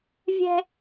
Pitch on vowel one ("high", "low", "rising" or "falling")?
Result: high